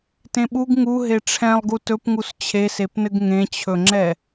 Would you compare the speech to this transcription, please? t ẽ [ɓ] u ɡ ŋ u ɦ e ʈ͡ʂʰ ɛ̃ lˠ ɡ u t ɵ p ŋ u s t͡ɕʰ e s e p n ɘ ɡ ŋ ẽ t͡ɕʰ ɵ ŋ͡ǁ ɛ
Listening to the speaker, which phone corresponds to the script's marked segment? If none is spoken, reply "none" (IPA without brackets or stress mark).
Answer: ɓ